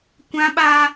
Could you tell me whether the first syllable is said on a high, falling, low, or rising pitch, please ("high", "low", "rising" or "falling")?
high